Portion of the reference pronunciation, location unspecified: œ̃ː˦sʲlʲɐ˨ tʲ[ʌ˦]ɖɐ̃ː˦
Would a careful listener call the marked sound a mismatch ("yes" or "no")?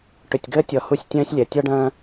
yes